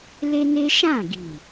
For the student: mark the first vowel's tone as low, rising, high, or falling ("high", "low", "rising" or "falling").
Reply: high